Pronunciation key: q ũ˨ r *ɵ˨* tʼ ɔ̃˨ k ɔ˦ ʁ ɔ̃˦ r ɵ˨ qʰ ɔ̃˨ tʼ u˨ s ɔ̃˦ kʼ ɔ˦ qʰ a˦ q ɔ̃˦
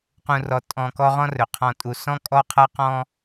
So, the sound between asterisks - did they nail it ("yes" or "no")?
no